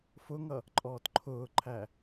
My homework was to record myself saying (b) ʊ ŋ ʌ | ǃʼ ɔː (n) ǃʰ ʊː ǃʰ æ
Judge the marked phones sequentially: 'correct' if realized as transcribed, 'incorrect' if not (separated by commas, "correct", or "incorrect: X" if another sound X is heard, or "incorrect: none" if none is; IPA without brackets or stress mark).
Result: incorrect: f, incorrect: t